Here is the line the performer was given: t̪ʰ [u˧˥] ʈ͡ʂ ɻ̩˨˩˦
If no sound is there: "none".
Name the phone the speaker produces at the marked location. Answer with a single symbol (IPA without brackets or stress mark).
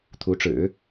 u˧˥